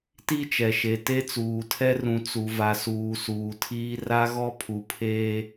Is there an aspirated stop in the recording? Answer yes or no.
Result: yes